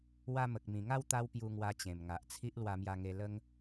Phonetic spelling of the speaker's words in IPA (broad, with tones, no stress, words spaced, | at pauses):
wa˧mə˨k̚mĩ˨˩ŋa˥˧w t̪a˦wpju˧ŋwa˧t͡ɕẽ˨˩m ŋa˨ʔt͡sʰi˦ʔ lwa˧mja˧ŋe˧ lə˦ŋ